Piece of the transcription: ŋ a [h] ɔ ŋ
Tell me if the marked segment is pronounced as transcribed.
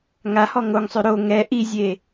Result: yes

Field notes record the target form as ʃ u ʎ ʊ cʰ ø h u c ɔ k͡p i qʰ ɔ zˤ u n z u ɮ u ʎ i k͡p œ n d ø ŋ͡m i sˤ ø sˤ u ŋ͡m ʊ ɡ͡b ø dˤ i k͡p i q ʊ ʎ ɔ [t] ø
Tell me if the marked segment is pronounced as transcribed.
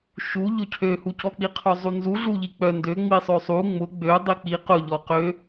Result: no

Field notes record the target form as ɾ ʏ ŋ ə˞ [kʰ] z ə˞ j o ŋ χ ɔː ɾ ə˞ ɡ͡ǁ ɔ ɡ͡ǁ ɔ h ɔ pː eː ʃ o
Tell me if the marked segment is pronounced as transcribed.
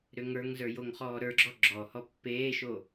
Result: no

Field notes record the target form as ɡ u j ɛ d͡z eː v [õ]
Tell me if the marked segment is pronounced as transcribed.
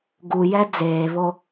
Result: no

